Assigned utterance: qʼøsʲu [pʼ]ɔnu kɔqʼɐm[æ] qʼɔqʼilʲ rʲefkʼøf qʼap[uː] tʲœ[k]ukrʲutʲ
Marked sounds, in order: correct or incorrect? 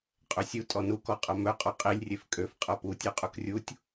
incorrect: tʼ, incorrect: œ, incorrect: u, incorrect: qʼ

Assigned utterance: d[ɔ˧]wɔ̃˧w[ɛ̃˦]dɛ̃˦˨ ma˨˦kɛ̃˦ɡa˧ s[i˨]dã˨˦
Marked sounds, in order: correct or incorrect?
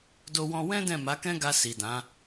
incorrect: o˧, correct, correct

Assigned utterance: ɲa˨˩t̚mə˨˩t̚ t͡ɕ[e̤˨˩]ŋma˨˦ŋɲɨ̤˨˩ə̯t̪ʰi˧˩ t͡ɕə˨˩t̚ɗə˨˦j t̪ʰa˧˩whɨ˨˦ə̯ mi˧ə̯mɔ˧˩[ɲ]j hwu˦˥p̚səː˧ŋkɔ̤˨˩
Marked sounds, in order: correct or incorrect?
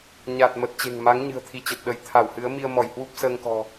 correct, incorrect: none

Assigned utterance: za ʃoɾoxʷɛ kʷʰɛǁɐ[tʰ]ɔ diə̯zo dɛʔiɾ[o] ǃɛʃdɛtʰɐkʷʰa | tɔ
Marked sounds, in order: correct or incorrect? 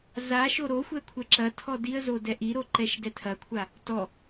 correct, correct

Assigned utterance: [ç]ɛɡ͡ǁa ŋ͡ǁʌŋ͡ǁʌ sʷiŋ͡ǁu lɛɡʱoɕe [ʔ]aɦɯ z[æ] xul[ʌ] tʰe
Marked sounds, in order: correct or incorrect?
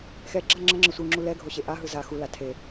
incorrect: x, correct, incorrect: a, incorrect: a

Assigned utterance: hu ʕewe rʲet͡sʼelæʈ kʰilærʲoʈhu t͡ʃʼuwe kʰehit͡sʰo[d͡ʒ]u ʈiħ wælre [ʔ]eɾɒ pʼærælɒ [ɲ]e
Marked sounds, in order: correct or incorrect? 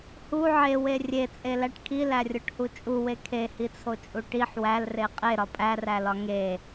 incorrect: t͡ʃʼ, incorrect: qʼ, incorrect: ŋ

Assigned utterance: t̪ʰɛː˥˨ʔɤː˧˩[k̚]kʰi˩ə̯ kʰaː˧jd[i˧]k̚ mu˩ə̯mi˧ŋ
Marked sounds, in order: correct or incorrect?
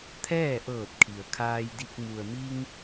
incorrect: t̚, correct

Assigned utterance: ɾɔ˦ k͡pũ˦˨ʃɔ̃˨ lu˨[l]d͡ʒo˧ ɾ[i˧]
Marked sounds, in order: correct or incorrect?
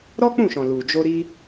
incorrect: none, correct

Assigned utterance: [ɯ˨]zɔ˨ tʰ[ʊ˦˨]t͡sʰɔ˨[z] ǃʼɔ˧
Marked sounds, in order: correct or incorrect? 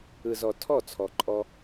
correct, incorrect: ɔ˦˨, incorrect: none

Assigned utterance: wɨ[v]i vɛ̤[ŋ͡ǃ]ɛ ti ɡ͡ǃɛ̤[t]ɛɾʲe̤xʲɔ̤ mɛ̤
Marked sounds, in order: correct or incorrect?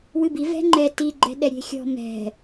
incorrect: b, correct, incorrect: ɗ

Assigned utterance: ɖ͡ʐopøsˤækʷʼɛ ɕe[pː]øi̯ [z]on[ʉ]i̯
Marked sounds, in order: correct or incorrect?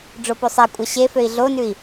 incorrect: f, incorrect: ɮ, correct

